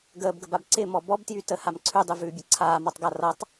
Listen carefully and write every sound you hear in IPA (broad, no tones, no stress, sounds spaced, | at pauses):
ɡ əː b ɡ ə b a b ǀ ɪ m ɔ b ɔ b t j y t ə h a m ǀʰ ʉ dˤ y v ʉː bʲ ʌ ǀʰ aː m ɔ tˤ ɡ a r ʌ tˤ